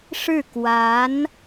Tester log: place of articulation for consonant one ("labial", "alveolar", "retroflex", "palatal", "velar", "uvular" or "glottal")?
retroflex